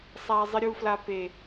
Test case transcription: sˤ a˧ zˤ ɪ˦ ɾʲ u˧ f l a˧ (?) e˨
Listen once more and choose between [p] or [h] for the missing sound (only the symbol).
p